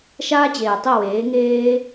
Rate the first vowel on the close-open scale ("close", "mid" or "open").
open